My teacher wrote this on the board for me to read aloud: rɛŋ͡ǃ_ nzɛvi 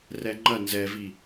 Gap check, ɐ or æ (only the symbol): ɐ